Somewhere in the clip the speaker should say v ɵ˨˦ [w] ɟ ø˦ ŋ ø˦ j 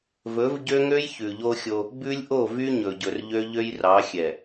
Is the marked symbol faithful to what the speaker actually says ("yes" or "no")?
no